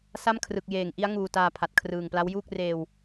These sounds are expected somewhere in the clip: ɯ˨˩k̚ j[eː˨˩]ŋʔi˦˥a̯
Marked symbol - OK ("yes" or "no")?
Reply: yes